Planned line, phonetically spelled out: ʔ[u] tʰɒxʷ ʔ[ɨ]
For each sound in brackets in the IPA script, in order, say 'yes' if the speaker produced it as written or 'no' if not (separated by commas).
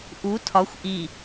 yes, no